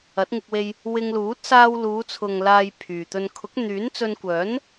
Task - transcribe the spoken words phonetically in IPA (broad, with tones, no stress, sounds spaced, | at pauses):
ɐ˨˥ t̚ ŋ ɪ˧ k̚ w e˧ j | w ɪ˧ ŋ l uː˨˥ t̚ s aː˧ w l uː˨˧ t͡sʰ ʊ˨ ŋ l aː˧ j pʰ yː˨ t̪ ɵ˧ n kʰ ʊ˨˥ k̚ n̪ yː˨˥ n t͡s ɵ˧ n kʷ œː˨˥ n